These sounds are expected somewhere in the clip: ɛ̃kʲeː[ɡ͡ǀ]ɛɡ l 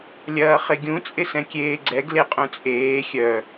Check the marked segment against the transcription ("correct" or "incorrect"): correct